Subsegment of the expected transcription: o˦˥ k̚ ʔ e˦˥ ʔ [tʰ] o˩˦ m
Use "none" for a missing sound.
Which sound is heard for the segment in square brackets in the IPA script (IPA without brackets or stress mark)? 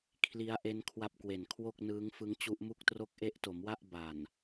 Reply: t